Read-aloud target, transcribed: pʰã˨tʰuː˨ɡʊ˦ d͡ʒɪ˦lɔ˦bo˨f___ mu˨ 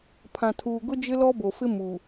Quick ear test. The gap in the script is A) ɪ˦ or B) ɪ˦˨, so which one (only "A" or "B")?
A